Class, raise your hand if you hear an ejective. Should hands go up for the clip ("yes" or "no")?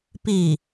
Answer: no